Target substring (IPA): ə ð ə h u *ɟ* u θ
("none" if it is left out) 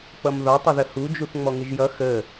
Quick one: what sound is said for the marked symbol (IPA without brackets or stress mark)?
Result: d͡ʒ